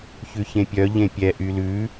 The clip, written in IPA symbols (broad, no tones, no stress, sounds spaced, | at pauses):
ç ʉ ç ẽ pʲ œ ʎ ẽ pʲ ɛ ʔ y l ʉ